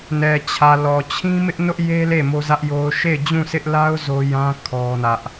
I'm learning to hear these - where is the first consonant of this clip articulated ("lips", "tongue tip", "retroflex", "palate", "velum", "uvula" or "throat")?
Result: tongue tip